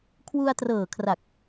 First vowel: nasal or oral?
oral